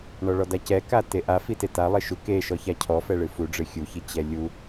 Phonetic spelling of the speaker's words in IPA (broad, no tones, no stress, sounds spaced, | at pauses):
ɳ ɔ ɭ ɔ d a c ɛ k a t e ʔ a f i t e t a lˠ e ʃ u k e ʃ ɔ ç a cʰ ɔ f ɛ ɭ ɨ f u ɖ͡ʐ ɨ xʲ u ç i t͡ɕ ɛ lʲ u